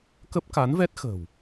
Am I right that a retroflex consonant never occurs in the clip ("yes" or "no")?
yes